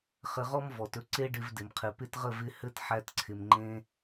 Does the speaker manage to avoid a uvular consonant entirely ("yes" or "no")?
no